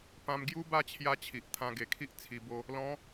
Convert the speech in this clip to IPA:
pã˧m ɡju˦ba˥˧ t͡ɕʰja˦t͡ɕʰi˨ʔ t̪ʰã˧ɡe˨˩kʰi˦ʔ t͡sʰi˧bo˦ | lɔ̃˨˦

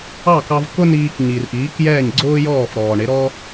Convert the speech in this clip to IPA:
ɑ˥˩kɑ˧v kʊ˥niː˧k ɲi˩rʔiː˩˥k jɛː˥˩ɲɡ͡ǀʊː˥jɔː˥˩f ɾɔː˩ɳɪ˩˥ɾɔ˥

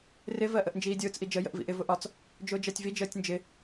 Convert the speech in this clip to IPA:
rɪ vɜʔəʔnd͡ʒiːdʲʊːt͡s ʔid͡ʒə jə̰ʔvḭʔɪ vʊʔɒt͡s | d͡ʒʊːd͡ʒɜtʲvi d͡ʒəːtʲnd͡ʒɪ

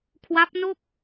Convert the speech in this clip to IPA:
kʰwa˦˥p̚no˥˩k̚

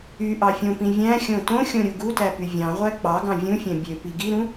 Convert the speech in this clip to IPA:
yʔɑ fʲõpĩ vʲæ̃xʲõ tõxʲõ ɾʲuɡutæ pyvʲɑ̃ʁʷæ k͡pɑɡɑ̃ vʲũfʲæ̃ bʲøpi ɡiɾũ

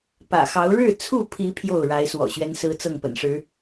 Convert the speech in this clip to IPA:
pä̰˨˩xɑ˨˦ʊ̯ ɻɻ̩˥˨t͡sʰu˥˨pʰi˨˦ pʰjo˥˨ʊ̯ɻa˨˦ɪ̯ swɔ̰˨˩ɕɥɛ˦nsɹ̩˦t͡sɤ˥˨ŋ pə̰˨˩nʂɻ̩˨˦

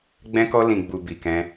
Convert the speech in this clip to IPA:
ɡ͡bɛ̃˦kɔ˦lĩ˧ɡ͡bu˧ bi˧kɛ̃˦

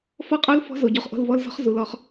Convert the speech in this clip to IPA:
fɔ˦qʼo˦l fɔ̤˦zo˨ ɟo˦χʔo̤˦l vɔ˦lzɔ̤˦χ zu˨lɔ˦χ

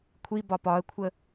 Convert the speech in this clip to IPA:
kʷʰi bɒpɒə̯kʷʰə

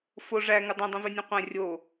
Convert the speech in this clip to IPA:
fo ʐæ ŋudˤĩdˤũve nʲũqʷæ̃ rʲo

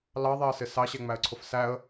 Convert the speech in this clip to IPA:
lɑðˤɛə̯sɪ sɑɕɛŋ͡mæə̯ǀʰʊf sæə̯

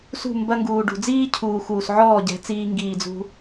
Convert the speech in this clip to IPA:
sṳ˦˨ mbɐ˧ŋɡuː˨ ɖṳ˨ d͡ziː˦cʰuː˨xuː˨s ʕɔː˦˨ɟɛ̤˨˦t͡siː˧ ŋɡiː˧d͡zṳ˦

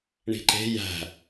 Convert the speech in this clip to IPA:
ɳi̤ǃe̤ jæ̤

